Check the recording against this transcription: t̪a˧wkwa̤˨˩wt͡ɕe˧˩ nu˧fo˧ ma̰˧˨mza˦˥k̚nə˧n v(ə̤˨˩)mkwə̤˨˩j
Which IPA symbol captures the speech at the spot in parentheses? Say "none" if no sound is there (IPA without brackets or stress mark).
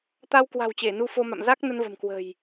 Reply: ə̤˨˩